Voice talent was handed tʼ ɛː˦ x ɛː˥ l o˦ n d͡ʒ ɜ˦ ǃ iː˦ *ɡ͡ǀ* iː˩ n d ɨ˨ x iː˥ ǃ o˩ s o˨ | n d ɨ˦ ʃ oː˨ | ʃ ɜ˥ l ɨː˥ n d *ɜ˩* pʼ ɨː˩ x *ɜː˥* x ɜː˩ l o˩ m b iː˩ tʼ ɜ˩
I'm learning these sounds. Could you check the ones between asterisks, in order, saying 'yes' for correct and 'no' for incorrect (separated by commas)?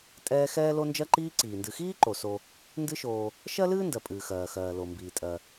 no, yes, no